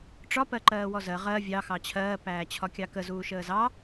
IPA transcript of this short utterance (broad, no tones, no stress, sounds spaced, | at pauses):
ʈ͡ʂ ɒ p ɜ ǃ ɜː w ɔ z ɜ ʁ ɜ vʲ ɑ x ɑ t͡ɕʰ ɜː p æː t͡ɕʰ ɒ kʲ ɑ k ə z uː ʃ əː z ɑ